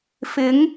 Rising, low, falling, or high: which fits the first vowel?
rising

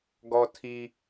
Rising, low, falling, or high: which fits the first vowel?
high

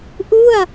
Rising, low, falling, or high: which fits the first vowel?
falling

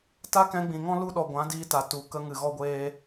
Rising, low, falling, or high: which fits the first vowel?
high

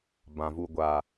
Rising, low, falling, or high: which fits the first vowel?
low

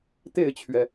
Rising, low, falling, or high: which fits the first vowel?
falling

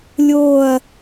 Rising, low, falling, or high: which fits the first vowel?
falling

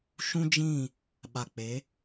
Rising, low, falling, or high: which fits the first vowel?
high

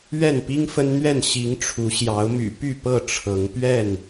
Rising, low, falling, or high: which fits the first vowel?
falling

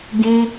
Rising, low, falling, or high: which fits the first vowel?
high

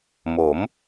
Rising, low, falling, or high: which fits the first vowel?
rising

